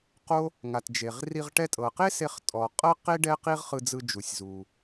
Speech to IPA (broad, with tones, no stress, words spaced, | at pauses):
qo˥ | ŋa˩t d͡ʒe˩ʁri˧ʁ ʈɛ˧tʼɤ˩qe˥ se˧χtʼɔ˩ qʼɤ˥qe˥ ɖɛ˥qi˥ʁχɯ˧d͡zɯ˧ d͡ʒu˩sʲzu˩